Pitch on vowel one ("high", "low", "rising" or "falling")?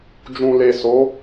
low